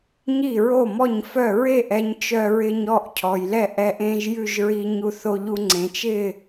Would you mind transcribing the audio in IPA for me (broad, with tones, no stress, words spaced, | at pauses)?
ɲi˥˩ɹo˥˩mɔ˥˩ɲfœ˥˩ ɹe˥˩ʔɛ˧ɲ t͡ʃœ˧ɹɪ˧ɲ ɔ˥˩ʔcʰɔ˩jlɛ˥˩ʔ ɛ˧ʔẽ˧ʒ jʉ˥˩ʒɹi˧ɲu˧θo˧ ʎu˧ŋ͡ǀẽ˩t͡ʃɪ˥˩